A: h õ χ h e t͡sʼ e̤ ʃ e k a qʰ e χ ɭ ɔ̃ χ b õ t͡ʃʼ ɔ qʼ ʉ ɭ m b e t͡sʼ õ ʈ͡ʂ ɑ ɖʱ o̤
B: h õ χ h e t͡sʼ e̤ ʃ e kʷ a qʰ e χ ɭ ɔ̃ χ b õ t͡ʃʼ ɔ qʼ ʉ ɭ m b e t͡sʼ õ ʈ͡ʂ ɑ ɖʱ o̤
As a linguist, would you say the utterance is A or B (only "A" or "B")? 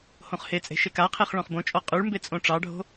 A